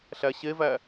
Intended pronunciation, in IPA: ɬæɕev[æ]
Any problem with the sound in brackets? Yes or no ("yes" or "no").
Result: no